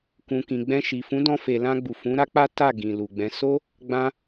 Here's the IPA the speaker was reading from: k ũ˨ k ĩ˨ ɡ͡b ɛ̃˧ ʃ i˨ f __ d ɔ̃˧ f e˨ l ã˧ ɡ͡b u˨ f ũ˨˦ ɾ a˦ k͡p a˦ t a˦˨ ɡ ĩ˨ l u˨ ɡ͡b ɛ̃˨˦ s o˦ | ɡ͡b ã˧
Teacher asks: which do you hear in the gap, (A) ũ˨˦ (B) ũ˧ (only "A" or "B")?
A